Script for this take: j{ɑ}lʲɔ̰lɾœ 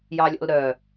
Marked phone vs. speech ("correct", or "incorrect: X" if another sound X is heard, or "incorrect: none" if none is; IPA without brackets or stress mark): correct